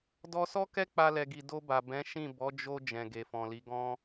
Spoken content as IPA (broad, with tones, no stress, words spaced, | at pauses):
dɔ˧sɔ˦kɛ˦ k͡pa˦lɛ˧ɡi˧ do˧ba˨bɛ̃˨˦ ʃĩ˦˨ bɔ˨˦d͡ʒo˧ d͡ʒɛ̃˨ɡe˨fɔ̃˨li˨˦ ɡɔ̃˦